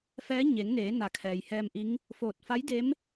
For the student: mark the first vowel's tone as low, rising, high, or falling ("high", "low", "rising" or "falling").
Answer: rising